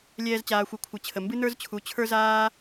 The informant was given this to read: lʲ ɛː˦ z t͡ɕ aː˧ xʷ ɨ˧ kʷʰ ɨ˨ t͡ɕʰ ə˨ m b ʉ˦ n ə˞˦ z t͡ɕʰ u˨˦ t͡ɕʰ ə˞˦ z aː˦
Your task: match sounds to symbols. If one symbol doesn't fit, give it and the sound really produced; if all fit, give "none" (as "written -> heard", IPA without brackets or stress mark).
ʉ˦ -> ɨ˦